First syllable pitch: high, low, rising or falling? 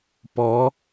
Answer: rising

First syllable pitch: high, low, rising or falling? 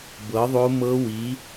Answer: rising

